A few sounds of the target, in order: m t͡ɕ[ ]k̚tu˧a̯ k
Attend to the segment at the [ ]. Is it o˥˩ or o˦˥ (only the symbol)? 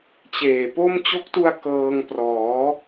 o˦˥